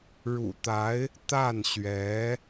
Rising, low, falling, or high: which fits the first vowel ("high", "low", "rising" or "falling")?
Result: low